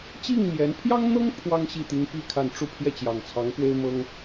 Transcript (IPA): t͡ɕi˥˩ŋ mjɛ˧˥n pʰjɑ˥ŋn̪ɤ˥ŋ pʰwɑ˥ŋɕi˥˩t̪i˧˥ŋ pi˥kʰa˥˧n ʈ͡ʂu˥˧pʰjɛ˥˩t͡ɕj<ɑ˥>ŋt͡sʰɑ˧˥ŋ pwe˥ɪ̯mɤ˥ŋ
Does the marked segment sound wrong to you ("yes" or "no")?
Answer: yes